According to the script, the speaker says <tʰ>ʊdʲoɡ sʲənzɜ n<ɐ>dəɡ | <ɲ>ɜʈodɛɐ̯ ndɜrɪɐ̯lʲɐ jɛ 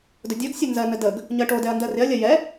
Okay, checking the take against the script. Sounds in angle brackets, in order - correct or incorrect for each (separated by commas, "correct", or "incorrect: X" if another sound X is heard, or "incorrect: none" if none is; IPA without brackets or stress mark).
incorrect: d, incorrect: ə, correct